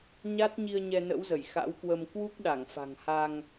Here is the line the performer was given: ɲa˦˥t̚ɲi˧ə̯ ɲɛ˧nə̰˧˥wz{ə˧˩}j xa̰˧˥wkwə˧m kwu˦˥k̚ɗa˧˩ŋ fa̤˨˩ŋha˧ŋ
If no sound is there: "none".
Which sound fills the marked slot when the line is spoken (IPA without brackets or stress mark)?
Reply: ə˧˩